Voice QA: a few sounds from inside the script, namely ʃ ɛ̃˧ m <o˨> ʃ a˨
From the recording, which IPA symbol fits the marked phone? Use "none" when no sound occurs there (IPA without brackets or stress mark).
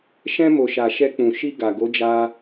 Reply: o˨